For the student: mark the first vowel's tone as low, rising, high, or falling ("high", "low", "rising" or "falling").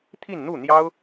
falling